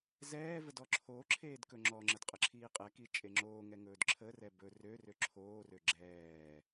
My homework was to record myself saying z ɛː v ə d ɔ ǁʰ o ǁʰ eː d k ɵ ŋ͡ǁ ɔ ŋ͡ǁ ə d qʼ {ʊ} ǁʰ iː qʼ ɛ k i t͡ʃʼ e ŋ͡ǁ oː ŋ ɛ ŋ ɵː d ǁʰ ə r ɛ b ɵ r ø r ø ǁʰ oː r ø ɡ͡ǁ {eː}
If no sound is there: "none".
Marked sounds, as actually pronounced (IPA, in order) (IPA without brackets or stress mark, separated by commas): ə, ɛː